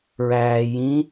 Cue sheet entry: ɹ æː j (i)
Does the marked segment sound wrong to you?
yes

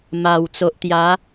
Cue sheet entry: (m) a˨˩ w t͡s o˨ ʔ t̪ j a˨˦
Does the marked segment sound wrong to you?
no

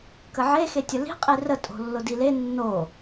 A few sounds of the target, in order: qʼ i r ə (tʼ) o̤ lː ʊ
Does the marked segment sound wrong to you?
no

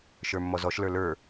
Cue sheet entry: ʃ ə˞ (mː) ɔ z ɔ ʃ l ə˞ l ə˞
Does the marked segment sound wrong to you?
no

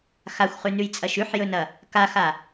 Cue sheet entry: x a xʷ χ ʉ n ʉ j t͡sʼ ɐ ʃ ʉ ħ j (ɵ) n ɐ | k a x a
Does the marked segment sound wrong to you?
no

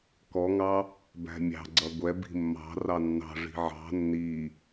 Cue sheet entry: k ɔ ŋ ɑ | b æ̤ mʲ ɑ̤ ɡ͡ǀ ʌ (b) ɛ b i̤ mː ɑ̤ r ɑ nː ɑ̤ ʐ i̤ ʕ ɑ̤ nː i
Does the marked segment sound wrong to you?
yes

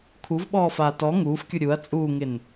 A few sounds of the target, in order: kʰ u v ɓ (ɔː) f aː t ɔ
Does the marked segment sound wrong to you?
no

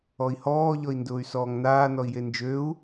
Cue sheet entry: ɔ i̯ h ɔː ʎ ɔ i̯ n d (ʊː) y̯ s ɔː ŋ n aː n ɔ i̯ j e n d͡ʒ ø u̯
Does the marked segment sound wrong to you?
no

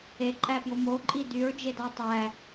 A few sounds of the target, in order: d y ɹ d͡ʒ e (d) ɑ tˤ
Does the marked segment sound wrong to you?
no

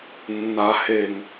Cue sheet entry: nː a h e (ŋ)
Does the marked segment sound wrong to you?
no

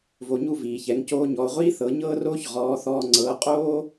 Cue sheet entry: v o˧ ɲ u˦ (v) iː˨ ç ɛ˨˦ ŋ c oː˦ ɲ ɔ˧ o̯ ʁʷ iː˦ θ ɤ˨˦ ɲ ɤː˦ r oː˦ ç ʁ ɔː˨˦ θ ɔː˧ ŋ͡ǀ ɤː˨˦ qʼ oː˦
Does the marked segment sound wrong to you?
no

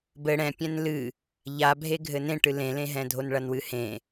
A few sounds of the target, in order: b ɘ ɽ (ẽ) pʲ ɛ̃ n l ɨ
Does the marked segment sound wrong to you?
yes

